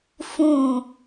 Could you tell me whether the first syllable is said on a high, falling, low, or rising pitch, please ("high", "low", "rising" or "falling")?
low